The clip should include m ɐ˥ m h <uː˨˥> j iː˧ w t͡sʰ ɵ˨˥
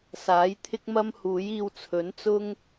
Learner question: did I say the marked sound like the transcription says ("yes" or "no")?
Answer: yes